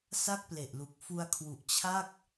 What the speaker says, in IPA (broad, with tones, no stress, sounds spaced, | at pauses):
s a˥˩ k̚ p l e˨˩ ʔ l u˨˩ k̚ f u˧ a̯ kʰ w u˨˩ ʔ t͡ɕʰ a˥˩ k̚